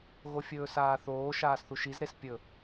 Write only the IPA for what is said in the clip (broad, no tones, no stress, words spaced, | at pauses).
ɣofʲɵːsaːθoː ʃaːsθuʃizɾes pʲɵ